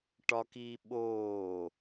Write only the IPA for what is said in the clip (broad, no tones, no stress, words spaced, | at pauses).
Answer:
ʈɒkiː ɓoː